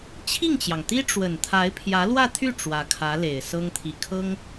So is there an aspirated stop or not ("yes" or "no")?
yes